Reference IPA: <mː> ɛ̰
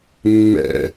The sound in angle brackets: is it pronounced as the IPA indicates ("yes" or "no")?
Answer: yes